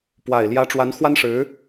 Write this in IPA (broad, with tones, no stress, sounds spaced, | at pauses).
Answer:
p w a˨˩ ɪ̯ l j ä˧˥ ʈ͡ʂ w a˧˥ n x w a˥ n ʂ ɻ̩˧˥